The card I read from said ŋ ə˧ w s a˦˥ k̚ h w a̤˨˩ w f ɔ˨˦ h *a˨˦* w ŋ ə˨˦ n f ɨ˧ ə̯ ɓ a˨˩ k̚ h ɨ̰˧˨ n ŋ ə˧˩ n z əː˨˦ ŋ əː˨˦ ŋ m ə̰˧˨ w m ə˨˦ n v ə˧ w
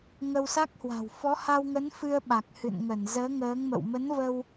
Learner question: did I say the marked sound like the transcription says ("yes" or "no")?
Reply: no